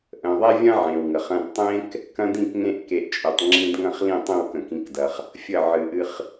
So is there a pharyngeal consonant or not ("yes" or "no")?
yes